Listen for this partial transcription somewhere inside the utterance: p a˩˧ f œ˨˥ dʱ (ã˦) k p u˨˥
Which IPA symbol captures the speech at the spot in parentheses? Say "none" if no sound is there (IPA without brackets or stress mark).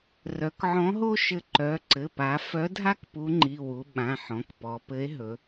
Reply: a˦